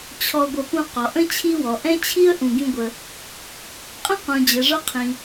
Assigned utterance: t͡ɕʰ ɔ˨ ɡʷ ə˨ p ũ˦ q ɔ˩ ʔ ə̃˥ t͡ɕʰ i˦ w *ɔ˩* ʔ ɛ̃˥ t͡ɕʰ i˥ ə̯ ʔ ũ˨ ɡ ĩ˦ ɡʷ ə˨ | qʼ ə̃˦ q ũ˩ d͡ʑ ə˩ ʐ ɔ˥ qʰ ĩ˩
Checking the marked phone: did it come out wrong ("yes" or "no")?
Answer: no